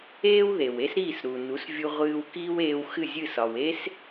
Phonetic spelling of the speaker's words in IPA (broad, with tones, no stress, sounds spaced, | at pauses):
eː˥ w ð e˩ w e˥ s ɾ iː˥˩ s ɾ u˩ n u˩˥ s vʲ u˧ ʁʷ ɨː˧ w k iː˥ w eː˧ w x ɨ˥˩ zʲ ɨ˥˩ s ɒ˩ w e˥ s